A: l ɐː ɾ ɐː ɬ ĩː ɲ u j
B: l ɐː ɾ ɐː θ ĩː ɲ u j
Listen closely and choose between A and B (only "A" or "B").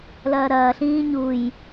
A